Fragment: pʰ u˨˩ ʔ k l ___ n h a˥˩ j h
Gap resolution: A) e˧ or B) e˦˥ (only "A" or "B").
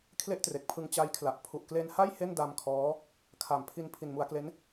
A